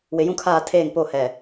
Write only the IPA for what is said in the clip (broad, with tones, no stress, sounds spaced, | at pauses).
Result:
w ɪ˨ j ũ˦ kʰ aː˦˨ tʰ eː˦˨ ŋ p o˦˨ h ɛ˨